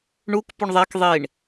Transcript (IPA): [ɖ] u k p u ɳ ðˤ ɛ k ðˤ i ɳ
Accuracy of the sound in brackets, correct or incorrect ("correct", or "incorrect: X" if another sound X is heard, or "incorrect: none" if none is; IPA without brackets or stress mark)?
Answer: incorrect: ɳ